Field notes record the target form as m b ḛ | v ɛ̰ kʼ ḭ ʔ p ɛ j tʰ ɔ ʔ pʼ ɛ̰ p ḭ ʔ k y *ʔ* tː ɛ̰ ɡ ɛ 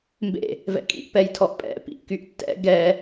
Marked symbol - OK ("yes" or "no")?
yes